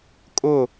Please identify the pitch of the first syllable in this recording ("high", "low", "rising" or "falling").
falling